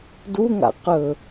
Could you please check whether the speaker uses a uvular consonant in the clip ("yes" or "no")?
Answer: yes